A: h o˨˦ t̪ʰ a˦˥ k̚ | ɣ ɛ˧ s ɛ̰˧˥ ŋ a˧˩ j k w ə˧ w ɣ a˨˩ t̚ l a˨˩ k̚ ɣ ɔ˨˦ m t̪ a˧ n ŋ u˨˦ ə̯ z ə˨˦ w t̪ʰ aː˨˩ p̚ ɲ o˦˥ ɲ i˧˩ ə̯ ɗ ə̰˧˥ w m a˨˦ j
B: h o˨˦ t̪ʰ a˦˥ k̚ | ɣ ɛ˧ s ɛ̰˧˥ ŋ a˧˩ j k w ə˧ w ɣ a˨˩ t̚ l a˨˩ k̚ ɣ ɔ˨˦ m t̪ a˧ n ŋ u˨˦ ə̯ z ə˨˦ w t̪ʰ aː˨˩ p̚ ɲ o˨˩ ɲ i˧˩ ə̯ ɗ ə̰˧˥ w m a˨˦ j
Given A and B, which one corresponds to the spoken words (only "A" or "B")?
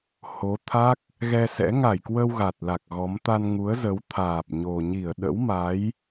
B